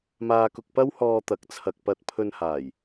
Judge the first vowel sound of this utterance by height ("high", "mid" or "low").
low